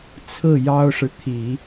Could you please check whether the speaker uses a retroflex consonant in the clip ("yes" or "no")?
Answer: yes